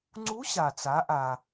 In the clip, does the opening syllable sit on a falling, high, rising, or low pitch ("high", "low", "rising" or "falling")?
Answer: rising